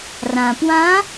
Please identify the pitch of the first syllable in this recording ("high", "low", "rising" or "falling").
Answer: low